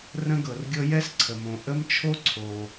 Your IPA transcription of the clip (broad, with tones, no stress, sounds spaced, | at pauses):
r ə̃˥ ɡ ɤ˩ r ɡʲ ɤ˥ j ɛ˥ s ǀʰ ə˩ m õ˩ ʔ ə˥ m t͡ʃʰ o˥ ǀʰ o˩